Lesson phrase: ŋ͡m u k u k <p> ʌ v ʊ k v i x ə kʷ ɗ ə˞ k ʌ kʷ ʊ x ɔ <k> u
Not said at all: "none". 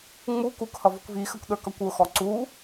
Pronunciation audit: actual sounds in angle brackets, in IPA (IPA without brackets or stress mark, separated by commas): h, ǀ